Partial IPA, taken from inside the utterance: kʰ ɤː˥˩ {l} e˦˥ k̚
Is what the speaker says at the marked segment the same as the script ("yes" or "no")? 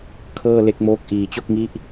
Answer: yes